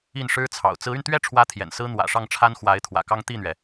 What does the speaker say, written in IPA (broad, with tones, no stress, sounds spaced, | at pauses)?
i˥˩ n ʂ ɻ̩˥ t͡sʰ ɑ̰˨˩ ʊ̯ t͡s ɹ̩˧˥ y˧ n t̪ ɥ ɛ˥˩ ʈ͡ʂʰ w ä˥ t̪ʰ j ɛ̰˨˩ n s ɹ̩˥ n̪ w ä̰˨˩ ʂ ɑ˥˩ ŋ ʈ͡ʂʰ a˥ n x w a˧˥ ɪ̯ t̪ʰ w ä̰˨˩ k ɑ˥ ŋ t̪ i˥˩ n̪ ɥ ɛ˩